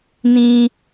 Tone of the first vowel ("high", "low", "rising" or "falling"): high